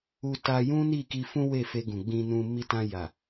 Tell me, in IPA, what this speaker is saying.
u˧ t a˧ j ũ˦ n i˦˨ k i˧ f ũ˦ w e˦˨ f e˧ ɡ ũ˨ ɡ͡b ĩ˧ n ũ˧ m i˧ t ã˧ j a˨

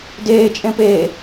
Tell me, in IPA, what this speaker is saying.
d eː t͡ʃʼ ẽ p eː

